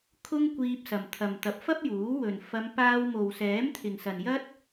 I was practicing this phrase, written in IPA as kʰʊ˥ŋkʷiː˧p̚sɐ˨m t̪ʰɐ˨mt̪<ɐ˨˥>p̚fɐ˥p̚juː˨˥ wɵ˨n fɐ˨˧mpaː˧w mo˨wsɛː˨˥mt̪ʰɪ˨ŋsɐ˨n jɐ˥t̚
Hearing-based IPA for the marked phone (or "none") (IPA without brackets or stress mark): ɐ˨˥